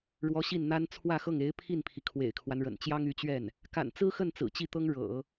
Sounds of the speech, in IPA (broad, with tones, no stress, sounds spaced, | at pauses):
ɻ w ɔ˧˥ ɕ i˥˩ n n̪ a˥ n t͡sʰ w ä˥˧ x ɤ˥˩ ŋ e˧˥ ɪ̯ pʰ i˥˩ n pʰ i˩ kʰ w ḛ˨˩ ɪ̯ kʰ w a˦ n ɻ ə̰˨˩ n t͡ɕ j ɑ˥ ŋ y˧˥ t͡ɕ ɥ ɛ˥˩ n | k a̰˨˩ n t͡s ɹ̩˥ x ə˥˩ n t͡s ɹ̩˨˩ t͡ɕ i˥˩ t̪ ɤ˥ ŋ ɻ ɤ̰˨˩˦